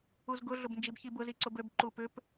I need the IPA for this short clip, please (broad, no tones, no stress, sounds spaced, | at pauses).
u z ɡ ʊ ɮ ʊ b n d͡ʒ i b ç i b ʊ z i ǀ ʊ b ø b ǃ u p ʏ p